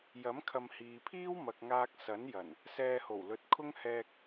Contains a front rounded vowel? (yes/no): no